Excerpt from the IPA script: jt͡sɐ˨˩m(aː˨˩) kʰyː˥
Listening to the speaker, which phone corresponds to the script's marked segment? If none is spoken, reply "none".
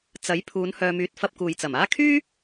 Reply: aː˥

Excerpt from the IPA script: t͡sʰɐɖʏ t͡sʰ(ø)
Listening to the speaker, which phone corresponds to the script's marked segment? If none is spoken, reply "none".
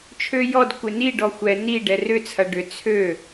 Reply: ø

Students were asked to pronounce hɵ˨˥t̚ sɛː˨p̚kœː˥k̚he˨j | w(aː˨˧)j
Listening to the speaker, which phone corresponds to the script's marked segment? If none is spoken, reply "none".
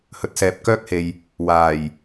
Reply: aː˨˩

